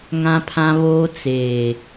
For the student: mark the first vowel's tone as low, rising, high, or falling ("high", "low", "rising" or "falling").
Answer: high